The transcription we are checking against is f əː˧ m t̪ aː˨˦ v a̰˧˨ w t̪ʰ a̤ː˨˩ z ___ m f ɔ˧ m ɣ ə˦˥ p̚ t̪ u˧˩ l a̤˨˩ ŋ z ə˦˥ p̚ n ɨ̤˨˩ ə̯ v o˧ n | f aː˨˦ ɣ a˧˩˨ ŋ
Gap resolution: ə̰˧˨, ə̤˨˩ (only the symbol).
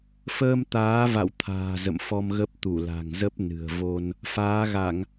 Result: ə̰˧˨